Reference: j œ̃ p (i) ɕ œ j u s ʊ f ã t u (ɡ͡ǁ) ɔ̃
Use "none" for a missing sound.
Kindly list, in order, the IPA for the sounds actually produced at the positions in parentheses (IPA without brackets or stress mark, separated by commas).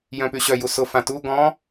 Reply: y, ɡ